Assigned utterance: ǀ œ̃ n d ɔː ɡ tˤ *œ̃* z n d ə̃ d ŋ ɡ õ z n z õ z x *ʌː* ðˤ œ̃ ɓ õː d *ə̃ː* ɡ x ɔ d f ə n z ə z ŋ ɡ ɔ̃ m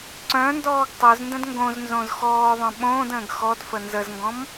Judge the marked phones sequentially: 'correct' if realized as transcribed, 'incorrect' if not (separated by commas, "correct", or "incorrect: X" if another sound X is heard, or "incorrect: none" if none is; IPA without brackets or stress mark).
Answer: incorrect: œ, incorrect: ɔː, correct